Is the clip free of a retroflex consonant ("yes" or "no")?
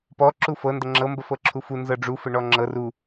no